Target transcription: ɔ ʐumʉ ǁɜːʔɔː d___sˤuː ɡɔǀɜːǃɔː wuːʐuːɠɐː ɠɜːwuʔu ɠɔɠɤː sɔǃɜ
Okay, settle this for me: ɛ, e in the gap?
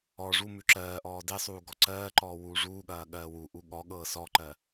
e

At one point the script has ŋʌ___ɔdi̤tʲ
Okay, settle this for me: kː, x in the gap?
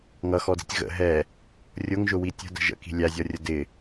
x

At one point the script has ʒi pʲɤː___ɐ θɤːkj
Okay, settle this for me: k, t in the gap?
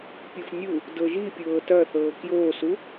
t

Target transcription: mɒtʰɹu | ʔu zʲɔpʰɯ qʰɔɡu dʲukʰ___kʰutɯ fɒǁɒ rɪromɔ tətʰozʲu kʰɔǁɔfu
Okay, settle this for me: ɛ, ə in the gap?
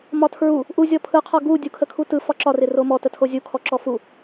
ə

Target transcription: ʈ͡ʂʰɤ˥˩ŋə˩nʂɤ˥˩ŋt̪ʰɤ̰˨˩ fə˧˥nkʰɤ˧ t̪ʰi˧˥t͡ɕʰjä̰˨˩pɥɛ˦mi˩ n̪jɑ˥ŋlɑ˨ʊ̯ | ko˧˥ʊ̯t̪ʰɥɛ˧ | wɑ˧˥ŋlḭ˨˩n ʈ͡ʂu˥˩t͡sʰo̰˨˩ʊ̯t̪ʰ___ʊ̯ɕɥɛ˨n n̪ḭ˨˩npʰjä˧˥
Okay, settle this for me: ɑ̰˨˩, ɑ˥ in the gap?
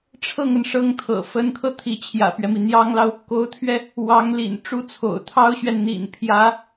ɑ˥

